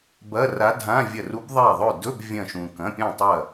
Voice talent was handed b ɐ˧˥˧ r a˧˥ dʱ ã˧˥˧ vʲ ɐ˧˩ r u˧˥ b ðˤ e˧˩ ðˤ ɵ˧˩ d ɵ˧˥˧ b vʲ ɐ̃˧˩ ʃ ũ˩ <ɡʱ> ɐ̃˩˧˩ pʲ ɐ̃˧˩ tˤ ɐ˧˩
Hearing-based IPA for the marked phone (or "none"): k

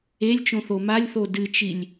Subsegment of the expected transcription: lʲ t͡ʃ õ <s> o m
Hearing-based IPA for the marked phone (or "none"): θ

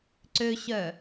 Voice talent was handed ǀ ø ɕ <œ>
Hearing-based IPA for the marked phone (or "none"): œ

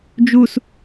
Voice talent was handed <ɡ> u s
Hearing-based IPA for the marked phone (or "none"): d͡ʒ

